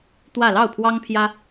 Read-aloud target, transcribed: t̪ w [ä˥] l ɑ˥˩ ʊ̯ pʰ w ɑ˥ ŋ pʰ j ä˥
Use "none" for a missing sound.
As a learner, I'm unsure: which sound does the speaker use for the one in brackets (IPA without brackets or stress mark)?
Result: ä˥˧